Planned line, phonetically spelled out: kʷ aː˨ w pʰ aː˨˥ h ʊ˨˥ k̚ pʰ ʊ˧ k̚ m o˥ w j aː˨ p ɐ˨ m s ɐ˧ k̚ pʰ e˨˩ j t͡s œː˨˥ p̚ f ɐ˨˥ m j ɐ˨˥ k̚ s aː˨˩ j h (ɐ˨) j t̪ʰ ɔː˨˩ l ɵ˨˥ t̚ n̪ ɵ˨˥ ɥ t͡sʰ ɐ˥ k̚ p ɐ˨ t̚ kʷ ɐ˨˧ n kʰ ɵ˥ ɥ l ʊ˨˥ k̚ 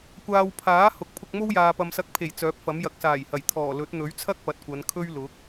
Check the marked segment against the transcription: incorrect: ɐ˨˩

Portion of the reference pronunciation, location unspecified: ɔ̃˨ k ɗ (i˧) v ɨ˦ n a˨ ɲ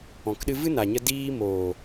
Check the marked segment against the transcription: incorrect: ɨ˧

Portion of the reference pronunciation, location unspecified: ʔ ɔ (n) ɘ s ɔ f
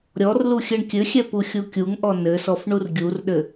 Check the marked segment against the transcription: correct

